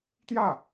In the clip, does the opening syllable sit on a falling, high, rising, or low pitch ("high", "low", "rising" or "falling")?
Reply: falling